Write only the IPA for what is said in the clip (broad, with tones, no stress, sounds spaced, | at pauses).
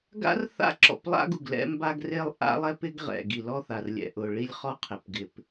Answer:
ɡ a̰˦ r θ a̰˦ ǁ ɔ̰˨ p lˠ a̰˦ ɡ u˨ ɡ l ɛ̰˦ m b a˦ ɡ r e˦ lˠ ʔ a̰˦ lˠ ɛ˦ p ɪ˦ ɡ ʁ ɛ̰˨ ɡ i˨ l ɔ˦ θ a˨ r lʲ ɛ̰˨ ʔ ʊ˨ ɭ i˦ lʲ χ ɔ˦ qʰ ɪ˨ p ɡ ɪ˨ p